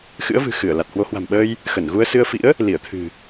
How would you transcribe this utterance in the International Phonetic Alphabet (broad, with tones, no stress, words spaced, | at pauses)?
xɨ̰˧˥ə̯vɨ̤˨˩xɨ˧˩ə̯ la˨˩t̚hwo˨˦hwa̤˨˩mɓəː˧j | xə˧˩nɣu˧ə̯sɨ˧ə̯fḭ˧˥ə̯ | li˧˩ə̯t̪ʰɨ̤˨˩